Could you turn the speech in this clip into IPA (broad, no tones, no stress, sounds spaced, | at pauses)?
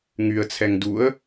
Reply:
ŋ y ə̯ t͡sʰ ɛ ŋ d u ə̯